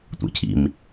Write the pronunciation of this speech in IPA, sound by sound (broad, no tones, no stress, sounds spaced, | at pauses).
tʷ ḛ cʰ ḭ m